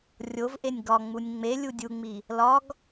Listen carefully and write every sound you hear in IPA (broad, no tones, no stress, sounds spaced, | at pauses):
rʲ o v ʔ e nʲ ɡ ɒ ŋ͡m u nʲ ŋ͡m e lʲ u dʲ u ŋ͡m i | l ɒ ɡ